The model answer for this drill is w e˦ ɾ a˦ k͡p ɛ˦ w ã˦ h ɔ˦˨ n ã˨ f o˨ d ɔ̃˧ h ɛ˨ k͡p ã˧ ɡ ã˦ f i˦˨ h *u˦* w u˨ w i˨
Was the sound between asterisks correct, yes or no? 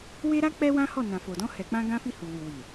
no